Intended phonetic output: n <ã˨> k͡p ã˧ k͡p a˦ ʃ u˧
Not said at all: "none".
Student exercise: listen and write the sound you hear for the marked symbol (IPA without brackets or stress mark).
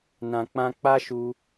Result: ã˨